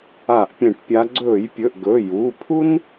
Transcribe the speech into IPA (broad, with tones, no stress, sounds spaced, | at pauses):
a˧˩˧ ʔ pʲ ẽ˧˩˧ ʈ pʲ a˨˦ ɡ͡ǀ ɵː˧˩˧ j pʲ ɵ˩˧˩ ʔ ɡ ɵ˩˧˩ j uː˩˧˩ pʰ u˥ n